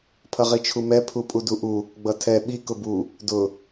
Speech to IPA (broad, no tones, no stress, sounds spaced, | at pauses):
pʰ ʌ ʁ i t͡ʃʰ u m ɛ pʰ u pʼ u d u ʔ u | ɡ͡b ʌ tʰ ɛ ɓ i k ʊ b u | d ʊ